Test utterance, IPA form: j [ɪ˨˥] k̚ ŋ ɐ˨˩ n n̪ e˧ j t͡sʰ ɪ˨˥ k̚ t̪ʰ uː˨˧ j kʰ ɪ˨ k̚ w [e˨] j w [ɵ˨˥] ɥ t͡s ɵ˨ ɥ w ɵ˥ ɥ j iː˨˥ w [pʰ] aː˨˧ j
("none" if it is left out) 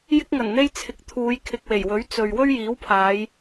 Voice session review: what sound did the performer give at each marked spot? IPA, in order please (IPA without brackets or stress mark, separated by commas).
ɪ˧, e˨˩, ɵ˨˥, pʰ